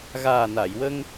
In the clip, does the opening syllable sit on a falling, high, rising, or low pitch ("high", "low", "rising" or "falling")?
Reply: low